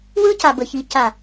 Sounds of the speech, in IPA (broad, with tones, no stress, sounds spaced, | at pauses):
w ɯ˦ c a˨ b ə˨ ç i˨ c a˨